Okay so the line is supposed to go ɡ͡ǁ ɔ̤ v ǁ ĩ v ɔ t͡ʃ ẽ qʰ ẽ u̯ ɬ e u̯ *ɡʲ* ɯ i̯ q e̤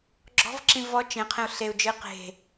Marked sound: incorrect: d͡ʒ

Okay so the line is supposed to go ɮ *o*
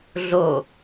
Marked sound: correct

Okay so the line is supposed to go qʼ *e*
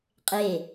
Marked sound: correct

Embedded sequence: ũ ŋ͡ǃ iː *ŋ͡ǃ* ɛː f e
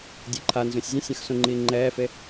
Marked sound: correct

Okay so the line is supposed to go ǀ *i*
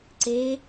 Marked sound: incorrect: e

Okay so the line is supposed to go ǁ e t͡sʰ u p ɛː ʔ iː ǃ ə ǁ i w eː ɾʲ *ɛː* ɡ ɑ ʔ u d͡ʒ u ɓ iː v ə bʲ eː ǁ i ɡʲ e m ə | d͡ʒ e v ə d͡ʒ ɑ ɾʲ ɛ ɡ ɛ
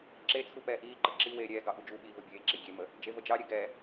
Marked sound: correct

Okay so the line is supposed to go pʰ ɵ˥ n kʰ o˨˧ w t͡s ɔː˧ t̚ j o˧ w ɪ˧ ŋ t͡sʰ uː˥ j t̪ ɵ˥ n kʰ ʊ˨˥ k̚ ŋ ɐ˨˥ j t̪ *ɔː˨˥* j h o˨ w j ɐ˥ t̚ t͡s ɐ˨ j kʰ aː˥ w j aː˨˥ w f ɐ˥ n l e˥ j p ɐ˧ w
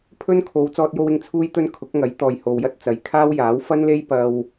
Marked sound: incorrect: ɔː˨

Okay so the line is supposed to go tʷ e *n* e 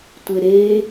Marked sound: incorrect: ɾ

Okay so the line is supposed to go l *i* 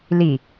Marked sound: correct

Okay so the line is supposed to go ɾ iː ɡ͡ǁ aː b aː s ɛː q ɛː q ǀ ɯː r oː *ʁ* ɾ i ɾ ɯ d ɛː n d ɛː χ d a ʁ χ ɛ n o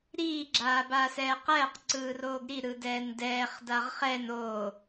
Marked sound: incorrect: ɡ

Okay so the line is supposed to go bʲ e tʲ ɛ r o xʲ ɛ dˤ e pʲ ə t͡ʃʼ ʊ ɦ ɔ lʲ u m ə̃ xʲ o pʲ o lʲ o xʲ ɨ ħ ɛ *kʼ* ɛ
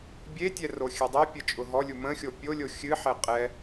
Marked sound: incorrect: qʼ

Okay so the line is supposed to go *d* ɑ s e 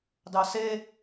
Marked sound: correct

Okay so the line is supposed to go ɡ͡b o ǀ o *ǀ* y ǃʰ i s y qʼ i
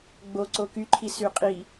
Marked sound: incorrect: k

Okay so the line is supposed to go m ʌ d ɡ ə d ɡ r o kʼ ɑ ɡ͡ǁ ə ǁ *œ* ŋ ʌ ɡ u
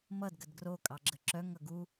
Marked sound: correct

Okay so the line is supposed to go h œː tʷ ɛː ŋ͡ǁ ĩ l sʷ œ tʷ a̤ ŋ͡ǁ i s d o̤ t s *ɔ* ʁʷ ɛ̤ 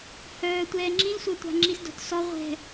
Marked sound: correct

